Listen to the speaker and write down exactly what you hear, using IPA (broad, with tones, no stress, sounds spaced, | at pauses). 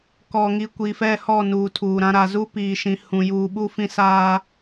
k ɔ˨ ŋ i˨ kʷ i˨ f ɛ˦˨ h ɔ˦˨ n uː˨ tʰ uː˨ ɾ ã˦ ɾ a˨ z u˦ p iː˨ ʃ ĩ˨ h ũ˨ j uː˨ ɓ u˦˨ f ĩ˦ s aː˦